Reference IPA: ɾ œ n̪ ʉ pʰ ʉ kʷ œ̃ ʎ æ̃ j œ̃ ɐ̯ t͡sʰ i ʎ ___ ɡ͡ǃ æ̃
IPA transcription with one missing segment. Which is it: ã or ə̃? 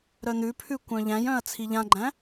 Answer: ã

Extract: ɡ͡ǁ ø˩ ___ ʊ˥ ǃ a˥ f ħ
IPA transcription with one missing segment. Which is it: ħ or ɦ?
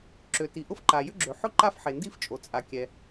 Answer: ħ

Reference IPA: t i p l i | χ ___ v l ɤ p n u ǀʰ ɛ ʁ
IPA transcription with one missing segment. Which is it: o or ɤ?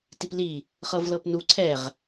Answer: ɤ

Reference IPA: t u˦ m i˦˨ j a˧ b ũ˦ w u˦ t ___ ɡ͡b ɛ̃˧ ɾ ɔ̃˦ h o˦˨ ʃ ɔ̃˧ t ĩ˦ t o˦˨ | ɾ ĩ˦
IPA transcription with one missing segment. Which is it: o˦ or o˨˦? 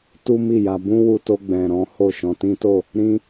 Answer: o˦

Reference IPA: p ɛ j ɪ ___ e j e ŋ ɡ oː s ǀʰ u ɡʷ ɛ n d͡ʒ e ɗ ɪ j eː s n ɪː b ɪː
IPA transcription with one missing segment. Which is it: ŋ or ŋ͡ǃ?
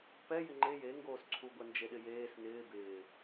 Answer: ŋ͡ǃ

